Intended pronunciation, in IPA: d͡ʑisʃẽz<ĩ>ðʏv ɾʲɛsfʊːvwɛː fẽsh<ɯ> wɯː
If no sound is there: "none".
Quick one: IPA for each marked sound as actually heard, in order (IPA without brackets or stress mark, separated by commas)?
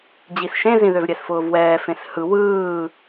ĩ, ɯ